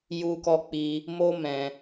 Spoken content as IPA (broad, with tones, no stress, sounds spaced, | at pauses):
j u˧ k ɔ˧ k͡p i˧ | m o˦ m ɛ̃˧